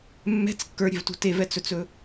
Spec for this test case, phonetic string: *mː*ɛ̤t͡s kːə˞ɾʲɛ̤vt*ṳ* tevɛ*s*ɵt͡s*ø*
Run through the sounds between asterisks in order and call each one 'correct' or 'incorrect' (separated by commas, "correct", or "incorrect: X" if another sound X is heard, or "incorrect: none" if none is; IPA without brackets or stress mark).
correct, correct, incorrect: t͡s, incorrect: ɵ